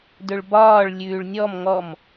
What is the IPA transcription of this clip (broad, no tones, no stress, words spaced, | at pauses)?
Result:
dɵɭbɒːɭ lʲʉːɭnʲɔm ŋɔm